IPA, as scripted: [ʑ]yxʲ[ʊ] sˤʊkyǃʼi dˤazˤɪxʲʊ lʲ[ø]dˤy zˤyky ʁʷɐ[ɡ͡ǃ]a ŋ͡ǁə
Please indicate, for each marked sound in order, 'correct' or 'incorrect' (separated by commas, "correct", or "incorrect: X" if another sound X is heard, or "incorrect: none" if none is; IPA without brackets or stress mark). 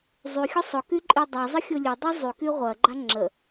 incorrect: zˤ, correct, correct, correct